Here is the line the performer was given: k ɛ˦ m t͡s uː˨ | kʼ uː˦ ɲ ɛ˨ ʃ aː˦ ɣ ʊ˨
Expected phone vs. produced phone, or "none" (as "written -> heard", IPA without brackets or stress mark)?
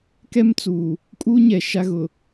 aː˦ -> a˦